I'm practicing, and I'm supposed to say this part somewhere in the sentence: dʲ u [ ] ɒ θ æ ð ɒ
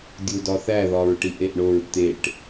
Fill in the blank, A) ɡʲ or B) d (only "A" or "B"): B